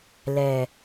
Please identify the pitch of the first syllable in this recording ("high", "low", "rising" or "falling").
low